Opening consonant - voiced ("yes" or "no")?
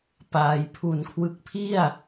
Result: no